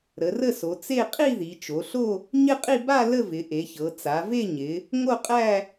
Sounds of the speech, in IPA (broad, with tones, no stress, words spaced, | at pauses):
ɾə˩˧rə˥˧so˩˧ t͡se˥˧ qʼi˥˧ði˩˧t͡ʃo˩˧ɬo˥˧ | ɲɪ˥˧qʼi˥˧ ba˥˧ lə˥˧vɪ˩˧ʔe˩˧çɤ˩˧ t͡sa˩˧ve˥˧ ɲɪ˩˧ | ŋo˥˧qʼæ˥˧